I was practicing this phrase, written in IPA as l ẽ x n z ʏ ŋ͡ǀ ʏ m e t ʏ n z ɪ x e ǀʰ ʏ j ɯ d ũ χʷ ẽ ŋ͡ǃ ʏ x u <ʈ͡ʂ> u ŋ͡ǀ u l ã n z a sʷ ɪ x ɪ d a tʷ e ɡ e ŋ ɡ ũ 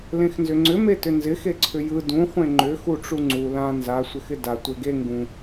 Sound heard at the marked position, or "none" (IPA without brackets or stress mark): ʈ͡ʂ